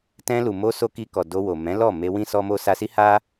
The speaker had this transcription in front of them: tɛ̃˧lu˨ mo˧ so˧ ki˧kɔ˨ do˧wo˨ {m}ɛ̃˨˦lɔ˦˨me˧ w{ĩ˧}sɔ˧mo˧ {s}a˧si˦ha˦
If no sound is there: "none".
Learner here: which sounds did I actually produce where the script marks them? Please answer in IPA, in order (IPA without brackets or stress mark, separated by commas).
m, ĩ˧, s